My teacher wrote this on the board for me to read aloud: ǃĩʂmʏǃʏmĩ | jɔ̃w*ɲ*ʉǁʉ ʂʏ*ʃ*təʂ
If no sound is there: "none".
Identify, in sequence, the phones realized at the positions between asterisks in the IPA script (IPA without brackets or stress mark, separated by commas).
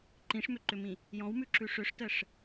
m, ʂ